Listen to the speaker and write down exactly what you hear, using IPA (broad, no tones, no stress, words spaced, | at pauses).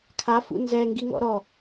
kʰafṵ nzɛŋɡiŋɔ̰ ɾɔ